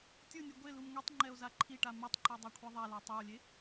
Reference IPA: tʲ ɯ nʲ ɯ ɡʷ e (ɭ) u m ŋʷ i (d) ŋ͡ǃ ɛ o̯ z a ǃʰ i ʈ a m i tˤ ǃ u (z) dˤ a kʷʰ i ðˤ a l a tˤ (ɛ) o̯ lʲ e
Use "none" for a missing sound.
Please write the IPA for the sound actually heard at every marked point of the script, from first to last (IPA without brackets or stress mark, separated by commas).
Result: l, tˤ, none, ɛ